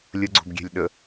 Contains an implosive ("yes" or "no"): yes